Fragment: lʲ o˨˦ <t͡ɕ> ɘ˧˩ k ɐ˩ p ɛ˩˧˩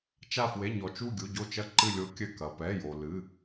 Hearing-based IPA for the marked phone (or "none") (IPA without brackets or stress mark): kʲ